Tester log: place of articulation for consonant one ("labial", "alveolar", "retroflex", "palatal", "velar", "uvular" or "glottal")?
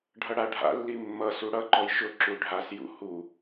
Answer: retroflex